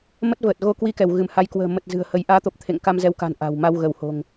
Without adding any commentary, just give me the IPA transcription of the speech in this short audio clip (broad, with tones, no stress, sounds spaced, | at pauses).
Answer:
m ə˦˥ t̚ v əː˨˩ t̚ ɣ o˧ k w i˧ k ɛ˧˩ w ɣ ɨ˧˩ m h a˨˦ j k w ə̤ː˨˩ m ə˨˩ t̚ z ɨ̤˨˩ ə̯ h ə˨˦ j ʔ aː˨˦ t̪ o˨˩ p̚ t̪ʰ ḛ˧˨ ŋ k a˧ m z ɛ˨˦ w k a̤˨˩ n ʔ a̤˨˩ w m a˧ w ɣ ə˧˩ w h o̤˨˩ ŋ